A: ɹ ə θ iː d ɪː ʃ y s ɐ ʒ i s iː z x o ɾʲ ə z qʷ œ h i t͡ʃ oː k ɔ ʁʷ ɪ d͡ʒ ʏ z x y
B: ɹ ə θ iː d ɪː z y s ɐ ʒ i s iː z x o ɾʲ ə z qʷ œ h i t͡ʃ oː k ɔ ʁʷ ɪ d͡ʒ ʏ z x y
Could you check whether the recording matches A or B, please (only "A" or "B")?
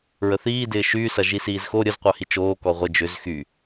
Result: A